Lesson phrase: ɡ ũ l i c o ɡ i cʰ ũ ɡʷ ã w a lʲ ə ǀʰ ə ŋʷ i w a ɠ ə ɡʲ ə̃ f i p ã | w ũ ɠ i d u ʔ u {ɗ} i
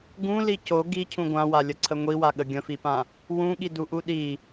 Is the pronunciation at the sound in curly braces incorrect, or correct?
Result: correct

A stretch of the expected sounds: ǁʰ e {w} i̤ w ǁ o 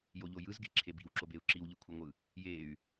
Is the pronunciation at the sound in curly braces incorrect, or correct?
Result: incorrect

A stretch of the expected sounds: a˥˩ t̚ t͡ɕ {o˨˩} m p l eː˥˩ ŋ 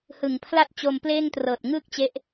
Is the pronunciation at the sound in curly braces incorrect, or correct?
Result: incorrect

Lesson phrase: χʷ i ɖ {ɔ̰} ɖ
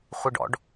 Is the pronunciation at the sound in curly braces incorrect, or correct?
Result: correct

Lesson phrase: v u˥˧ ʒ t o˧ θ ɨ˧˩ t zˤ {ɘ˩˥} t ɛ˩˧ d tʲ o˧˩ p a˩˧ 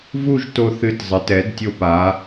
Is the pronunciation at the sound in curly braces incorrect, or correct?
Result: correct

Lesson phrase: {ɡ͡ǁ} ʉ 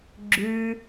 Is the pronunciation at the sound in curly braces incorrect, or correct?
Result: correct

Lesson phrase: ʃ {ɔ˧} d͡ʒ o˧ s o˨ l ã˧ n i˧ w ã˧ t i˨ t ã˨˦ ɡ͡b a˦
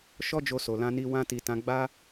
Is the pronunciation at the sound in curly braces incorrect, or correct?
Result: incorrect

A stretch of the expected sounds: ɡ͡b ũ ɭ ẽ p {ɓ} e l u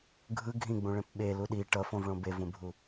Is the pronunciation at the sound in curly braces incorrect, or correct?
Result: correct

